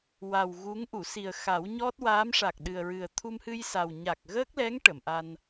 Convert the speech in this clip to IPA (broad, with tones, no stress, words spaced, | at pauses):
wa˨˩w ɣu˧˥ŋ ʔu˨˩˨si˨˩ə̯ xa˨˩˦wɲɔ˦˥t̚ waː˧˥mʂa˨˩k̚ ɗɨ˨˩ə̯ɹɨ˨˩ə̯ t̪ʰu˧mhɨ˧jsa˨˩w ɲa˨˩k̚ɣəː˦˥k̚lɛ˧˥ŋ ʈə˨˩˨mʔa˧n